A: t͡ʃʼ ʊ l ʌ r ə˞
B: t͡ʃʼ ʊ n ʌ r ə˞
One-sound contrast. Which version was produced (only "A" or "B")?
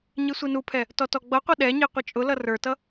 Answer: A